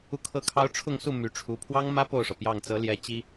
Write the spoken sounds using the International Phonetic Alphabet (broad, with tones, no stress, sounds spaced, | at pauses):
u˥˧ kʰ ɤ˥˩ kʰ ɑ˥ ʊ̯ ʈ͡ʂʰ ʊ˥˧ ŋ s u˥˩ m y˧˥ ʈ͡ʂʰ u˧˥ pʰ w ɑ˥ ŋ m ä˥ p o˥˩ ʊ̯ ʂ ɤ˩ p j ɑ˥˩ ŋ t͡s ɤ˧˥ l j ɛ˧˥ t͡ɕ i˥